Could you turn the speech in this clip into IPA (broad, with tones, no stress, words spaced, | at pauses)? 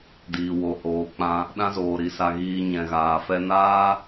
diː˧wo˧hoː˧ k͡pã˧ | ɗã˦zoː˧ɾi˧sa˧ ɣiː˧ ɲɛ̃˧ɣaː˧fɛ˦ naː˦